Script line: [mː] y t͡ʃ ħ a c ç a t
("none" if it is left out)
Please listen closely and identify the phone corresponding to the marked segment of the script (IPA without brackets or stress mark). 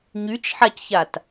ɲ